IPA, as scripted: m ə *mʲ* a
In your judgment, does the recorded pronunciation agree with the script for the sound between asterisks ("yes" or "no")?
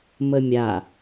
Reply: yes